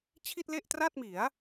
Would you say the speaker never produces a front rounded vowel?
yes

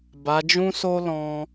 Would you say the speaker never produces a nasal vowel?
no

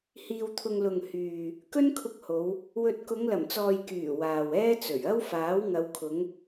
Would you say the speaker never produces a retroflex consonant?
yes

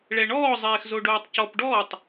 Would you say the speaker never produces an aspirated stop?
yes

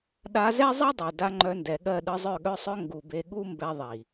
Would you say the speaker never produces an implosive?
no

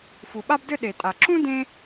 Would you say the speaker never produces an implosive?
no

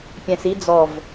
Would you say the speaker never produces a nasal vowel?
no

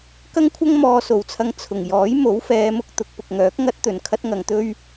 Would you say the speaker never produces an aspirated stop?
no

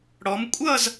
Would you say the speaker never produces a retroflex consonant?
no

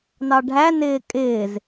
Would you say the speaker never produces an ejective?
no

